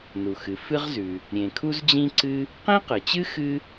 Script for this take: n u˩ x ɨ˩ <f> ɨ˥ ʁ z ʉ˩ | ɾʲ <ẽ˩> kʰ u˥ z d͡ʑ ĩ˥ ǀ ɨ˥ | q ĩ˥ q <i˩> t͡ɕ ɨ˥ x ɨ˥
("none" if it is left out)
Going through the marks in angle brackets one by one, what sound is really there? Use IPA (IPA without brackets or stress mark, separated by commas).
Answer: f, ẽ˩, ɨ˩